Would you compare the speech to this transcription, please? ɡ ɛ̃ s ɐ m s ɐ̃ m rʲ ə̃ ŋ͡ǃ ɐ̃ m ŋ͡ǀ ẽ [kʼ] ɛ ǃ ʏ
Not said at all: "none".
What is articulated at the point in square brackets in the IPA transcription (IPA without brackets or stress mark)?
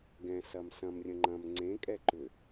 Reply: kʼ